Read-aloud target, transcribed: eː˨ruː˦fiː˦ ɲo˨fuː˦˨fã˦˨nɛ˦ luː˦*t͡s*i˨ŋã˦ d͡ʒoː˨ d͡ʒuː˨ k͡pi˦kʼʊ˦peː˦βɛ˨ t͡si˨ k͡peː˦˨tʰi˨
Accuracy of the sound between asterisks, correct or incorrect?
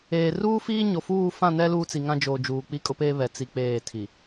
correct